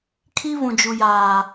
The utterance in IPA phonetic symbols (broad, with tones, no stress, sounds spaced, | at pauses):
kʰ i˦ β ũ˨ d͡ʒ u˨ j aː˨